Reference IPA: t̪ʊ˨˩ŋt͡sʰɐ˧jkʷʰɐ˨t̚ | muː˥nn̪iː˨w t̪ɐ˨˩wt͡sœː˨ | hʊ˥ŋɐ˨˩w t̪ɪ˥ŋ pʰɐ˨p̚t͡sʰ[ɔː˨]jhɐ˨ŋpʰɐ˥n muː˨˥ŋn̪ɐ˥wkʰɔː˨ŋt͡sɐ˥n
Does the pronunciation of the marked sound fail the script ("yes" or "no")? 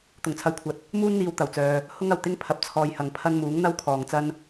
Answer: yes